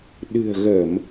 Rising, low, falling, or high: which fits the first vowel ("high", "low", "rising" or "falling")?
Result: low